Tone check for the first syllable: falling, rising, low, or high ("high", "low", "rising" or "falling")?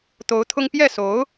rising